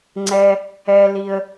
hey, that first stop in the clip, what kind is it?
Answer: click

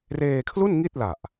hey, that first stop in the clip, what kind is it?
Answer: aspirated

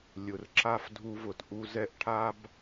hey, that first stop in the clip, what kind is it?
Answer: click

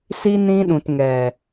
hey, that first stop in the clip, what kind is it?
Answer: implosive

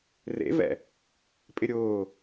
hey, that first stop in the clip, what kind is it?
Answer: ejective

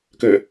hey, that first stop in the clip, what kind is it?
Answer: plain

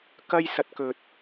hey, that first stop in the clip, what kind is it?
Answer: plain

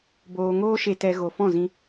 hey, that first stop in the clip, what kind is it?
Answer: plain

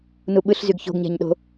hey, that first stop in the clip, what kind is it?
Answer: implosive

